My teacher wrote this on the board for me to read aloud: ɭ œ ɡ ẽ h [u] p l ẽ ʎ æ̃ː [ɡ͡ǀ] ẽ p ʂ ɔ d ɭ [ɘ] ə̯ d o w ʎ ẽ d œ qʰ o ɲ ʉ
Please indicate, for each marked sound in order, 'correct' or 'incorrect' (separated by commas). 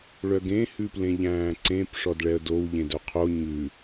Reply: incorrect, incorrect, incorrect